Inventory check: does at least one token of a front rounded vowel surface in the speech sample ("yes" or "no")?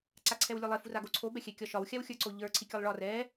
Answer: no